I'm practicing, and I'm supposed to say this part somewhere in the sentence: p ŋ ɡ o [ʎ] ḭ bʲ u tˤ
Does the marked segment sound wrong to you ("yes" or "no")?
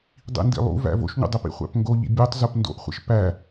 no